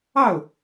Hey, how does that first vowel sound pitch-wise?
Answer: falling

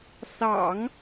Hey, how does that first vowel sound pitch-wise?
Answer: low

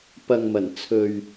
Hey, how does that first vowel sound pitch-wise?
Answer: low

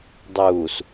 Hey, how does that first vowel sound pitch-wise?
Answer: low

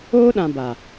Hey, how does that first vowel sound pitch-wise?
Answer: high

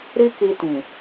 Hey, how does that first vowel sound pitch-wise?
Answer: high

